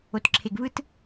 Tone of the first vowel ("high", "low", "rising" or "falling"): low